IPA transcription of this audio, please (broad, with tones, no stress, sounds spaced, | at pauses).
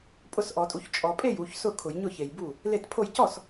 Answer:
pʼ ʊ˥˩ s ʔ ɔ˨˩˦ tʼ u˨ ç t͡ʃʼ ɔ˨ pʼ e˥˩ j u˨ ç s ʊ˥˩ kʰ ʊ˨˩˦ j ɲ ʊ˥˩ ç e˨ j b u˥˩ | l e˥˩ t pʰ o˥˩ j c ɔ˥˩ s